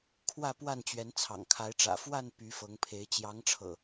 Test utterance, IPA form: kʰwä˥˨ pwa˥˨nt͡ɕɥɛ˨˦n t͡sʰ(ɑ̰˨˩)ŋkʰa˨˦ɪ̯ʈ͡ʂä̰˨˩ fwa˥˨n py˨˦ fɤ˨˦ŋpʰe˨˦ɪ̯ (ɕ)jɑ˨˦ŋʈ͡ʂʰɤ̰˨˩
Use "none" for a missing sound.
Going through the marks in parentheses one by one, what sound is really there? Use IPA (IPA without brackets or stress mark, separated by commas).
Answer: ɑ̰˨˩, t͡ɕ